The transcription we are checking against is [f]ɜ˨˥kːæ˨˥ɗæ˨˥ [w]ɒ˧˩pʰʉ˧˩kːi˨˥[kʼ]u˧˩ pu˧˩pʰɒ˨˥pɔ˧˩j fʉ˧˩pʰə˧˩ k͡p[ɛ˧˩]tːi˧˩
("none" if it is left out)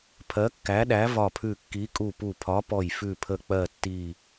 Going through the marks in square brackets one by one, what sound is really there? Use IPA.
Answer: pʰ, v, kʼ, ɜ˧˩

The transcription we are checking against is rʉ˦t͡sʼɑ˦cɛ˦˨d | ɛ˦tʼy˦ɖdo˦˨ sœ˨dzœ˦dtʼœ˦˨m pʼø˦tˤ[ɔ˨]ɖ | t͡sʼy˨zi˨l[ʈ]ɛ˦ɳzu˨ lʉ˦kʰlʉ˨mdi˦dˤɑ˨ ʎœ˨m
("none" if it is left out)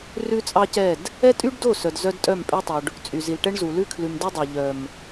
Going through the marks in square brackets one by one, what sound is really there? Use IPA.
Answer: o˨, ʈ

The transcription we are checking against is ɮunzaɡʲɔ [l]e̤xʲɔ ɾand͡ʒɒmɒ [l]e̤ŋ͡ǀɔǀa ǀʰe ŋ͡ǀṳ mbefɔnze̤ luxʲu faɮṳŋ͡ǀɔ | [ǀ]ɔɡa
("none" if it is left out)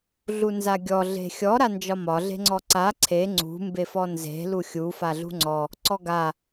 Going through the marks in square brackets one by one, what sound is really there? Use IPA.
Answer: ɮ, ɮ, ǀ

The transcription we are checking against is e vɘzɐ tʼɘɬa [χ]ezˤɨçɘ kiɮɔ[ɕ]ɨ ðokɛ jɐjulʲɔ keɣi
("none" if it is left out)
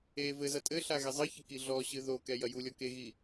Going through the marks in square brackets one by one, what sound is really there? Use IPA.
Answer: ɣ, ɕ

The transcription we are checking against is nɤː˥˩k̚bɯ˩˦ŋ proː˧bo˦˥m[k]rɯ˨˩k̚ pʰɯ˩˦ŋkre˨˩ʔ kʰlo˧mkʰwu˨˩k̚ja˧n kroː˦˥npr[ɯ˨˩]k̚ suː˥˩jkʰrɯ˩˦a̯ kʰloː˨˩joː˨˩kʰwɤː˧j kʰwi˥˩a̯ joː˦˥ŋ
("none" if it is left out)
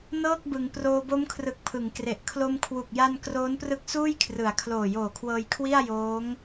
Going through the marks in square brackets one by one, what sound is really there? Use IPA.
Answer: kʰ, ɯ˦˥

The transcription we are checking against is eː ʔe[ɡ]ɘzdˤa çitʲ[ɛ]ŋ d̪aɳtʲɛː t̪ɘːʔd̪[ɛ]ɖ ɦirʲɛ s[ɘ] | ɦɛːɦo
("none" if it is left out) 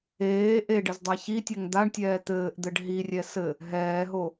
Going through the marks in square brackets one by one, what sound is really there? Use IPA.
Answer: ɖ, ɛ, ɘ, ɘ

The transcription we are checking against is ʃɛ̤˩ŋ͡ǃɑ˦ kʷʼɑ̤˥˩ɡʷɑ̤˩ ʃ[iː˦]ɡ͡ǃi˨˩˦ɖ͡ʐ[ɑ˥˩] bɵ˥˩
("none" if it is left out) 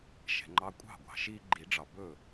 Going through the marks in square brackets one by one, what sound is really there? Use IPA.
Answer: iː˦, ɑ˩

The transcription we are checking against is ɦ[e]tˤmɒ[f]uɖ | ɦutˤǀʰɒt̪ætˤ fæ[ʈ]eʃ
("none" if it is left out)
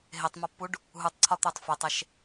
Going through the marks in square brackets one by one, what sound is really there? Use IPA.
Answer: e, pː, tˤ

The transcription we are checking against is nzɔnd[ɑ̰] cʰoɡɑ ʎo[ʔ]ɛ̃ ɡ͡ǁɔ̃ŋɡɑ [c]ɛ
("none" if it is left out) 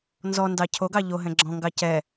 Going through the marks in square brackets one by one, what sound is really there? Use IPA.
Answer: ɑ, ɦ, c

